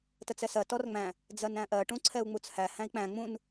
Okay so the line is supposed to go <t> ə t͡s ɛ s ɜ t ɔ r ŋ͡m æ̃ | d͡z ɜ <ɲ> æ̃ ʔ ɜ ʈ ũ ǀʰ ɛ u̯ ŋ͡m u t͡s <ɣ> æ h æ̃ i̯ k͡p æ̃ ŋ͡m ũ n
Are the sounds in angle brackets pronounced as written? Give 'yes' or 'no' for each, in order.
yes, no, no

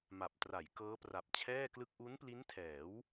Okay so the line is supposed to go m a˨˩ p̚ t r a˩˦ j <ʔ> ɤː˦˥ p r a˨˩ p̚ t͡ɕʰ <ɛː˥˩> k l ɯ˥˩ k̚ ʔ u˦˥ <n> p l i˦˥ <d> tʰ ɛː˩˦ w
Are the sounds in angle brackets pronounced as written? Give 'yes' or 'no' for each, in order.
no, yes, yes, no

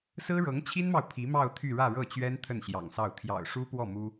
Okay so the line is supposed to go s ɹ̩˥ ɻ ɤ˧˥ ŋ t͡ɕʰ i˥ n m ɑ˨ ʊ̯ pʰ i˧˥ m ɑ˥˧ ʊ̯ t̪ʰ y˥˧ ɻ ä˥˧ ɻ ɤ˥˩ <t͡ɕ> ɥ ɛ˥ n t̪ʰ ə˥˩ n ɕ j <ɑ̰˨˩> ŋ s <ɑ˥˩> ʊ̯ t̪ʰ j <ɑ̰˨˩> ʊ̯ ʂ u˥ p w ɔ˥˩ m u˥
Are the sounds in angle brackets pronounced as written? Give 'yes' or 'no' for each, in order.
yes, yes, yes, yes

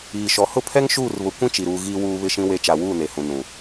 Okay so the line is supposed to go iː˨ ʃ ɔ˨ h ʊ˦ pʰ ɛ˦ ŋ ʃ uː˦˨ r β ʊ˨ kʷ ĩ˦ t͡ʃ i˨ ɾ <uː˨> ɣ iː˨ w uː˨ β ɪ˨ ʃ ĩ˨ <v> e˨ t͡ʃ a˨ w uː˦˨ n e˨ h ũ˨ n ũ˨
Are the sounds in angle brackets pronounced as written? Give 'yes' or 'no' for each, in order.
yes, no

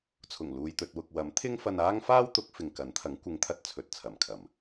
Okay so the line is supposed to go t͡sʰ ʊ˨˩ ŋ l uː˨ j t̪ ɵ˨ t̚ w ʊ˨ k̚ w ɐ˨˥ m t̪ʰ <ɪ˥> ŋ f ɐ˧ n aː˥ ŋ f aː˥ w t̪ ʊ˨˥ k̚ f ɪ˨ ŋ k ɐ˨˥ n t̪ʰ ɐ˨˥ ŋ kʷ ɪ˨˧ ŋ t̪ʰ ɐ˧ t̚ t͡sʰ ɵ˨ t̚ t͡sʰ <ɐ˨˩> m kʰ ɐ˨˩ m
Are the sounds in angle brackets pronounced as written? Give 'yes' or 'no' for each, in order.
yes, yes

